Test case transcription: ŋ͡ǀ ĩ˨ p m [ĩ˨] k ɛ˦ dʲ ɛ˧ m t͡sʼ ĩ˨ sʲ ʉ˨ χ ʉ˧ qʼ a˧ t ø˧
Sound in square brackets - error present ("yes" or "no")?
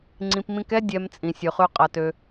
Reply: yes